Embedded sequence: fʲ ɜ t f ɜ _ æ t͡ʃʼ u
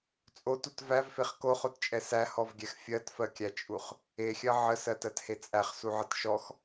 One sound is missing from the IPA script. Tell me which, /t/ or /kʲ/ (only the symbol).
kʲ